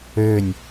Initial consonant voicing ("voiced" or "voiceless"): voiced